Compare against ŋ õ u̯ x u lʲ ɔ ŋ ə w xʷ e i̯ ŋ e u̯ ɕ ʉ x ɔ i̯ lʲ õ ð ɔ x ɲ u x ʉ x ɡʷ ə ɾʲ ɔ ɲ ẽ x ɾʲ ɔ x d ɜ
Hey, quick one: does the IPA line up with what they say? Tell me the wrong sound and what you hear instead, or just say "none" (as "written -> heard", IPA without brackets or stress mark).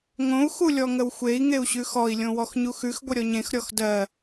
ð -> w